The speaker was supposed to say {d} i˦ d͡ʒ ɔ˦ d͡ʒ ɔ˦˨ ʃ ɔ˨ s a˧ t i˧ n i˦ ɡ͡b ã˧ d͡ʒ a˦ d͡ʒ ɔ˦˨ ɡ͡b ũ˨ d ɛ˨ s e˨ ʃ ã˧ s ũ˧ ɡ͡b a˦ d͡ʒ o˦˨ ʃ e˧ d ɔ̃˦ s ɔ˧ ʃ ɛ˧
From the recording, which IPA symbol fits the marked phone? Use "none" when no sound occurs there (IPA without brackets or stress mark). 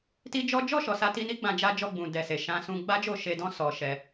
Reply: t